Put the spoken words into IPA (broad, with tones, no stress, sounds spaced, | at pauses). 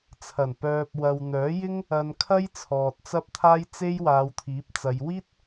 t͡sʰ ɐ˨˩ n p œː˨ p̚ w ɐ˨ w n̪ œː˨˥ j ɪ˥ ŋ | ɐ˧ n kʰ ɐ˥ j t͡sʰ ɔː˨ t̚ t͡s ɐ˥ p̚ t̪ʰ aː˥ j t͡s e˥ j w aː˨˧ w t̪ʰ iː˨˥ p̚ t͡s ɐ˨˧ j w iː˥ t̚